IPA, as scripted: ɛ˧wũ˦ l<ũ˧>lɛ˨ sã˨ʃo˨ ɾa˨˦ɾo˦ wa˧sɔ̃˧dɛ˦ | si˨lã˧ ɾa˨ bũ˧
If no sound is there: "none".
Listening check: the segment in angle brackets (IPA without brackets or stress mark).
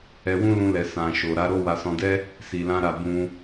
ũ˧